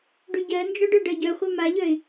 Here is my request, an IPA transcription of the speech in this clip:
ɖ ʉ ɟ ɜ n d͡ʒ ɔ ɖ œ ɖ ɜ ɟ œ χʷ œ m a ʎ œ ɪ̯

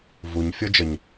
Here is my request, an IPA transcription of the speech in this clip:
v u ɲ fʲ ɤ d͡ʒ ə ɲ

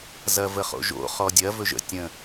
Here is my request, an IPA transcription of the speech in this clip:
z ɐ v ə χ o̰ ʒ o̰ χ ɔ dʲ ɐ v ɵ ʒ ə̰ tʲ ə̃

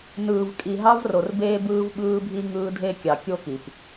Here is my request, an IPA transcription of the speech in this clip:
n ɯː˨ v kʼ i˨ ɦ ɑ˦ v r o˨ r b eː˦ b ɯː˦ v ɓ ɯː˦ bʱ i˦ ŋ ɯː˦ dʱ e˦ kʲ ɑ˨ kʲ o˦ k i˨ p

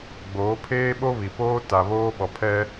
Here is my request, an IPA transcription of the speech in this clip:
ɡ͡b oː˨˦ pʰ eː˦ ɓ o˦ β i˨ p oː˦ t a˨ β oː˦ ɓ ɔ˨ pʰ ɛ˦

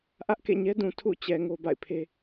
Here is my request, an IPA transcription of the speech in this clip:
ʔ ä˦ ʔ k ḛ˦˨ ɲ ɛ˦ d ũ˨ tʰ ṵ˦˨ t͡ɕ ɛ˨ ŋ o˦ b a̰˦˨ ɪ̯ pʰ e˦

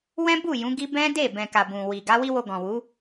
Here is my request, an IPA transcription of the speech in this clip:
w ɛ̃˦ b u˦˨ j ũ˨˦ ɡ i˦ b ɛ̃˦ d e˦˨ b ɛ̃˨ k a˨ b ũ˨ w i˨ ɡ a˨˦ w i˦ w o˧ ɡ ɔ̃˨ w u˨˦

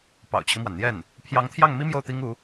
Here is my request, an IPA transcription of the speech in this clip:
p ɑ̰˨˩ ʊ̯ t͡ɕʰ i˦ m w a˩ n n̪ j ɛ˥˩ n | pʰ j ɑ˧˥ ŋ t̪ʰ j ɑ˥˩ ŋ m i˥ m j o˥˩ ʊ̯ t̪ i˥ ŋ u˧˥

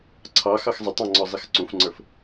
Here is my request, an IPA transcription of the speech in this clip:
ǀʰ ɑ x ɑ x zˤ ɪ tˤ ɑ̃ ŋ͡ǀ ɔ zˤ i x ǀ ũ f ŋ͡ǀ ə˞ f

